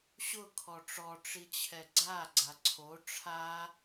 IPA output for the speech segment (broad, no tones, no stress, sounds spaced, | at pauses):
ɕ ʊ kʰ ɔ ʈ͡ʂ ɔ ʈ͡ʂ i t͡ɕʰ ɛ ɡ͡ǀ a ɡ͡ǀ a ǀʰ o ʈ͡ʂʰ a